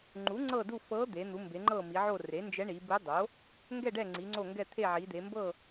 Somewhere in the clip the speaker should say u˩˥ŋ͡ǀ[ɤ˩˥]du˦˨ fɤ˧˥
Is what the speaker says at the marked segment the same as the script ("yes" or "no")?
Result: no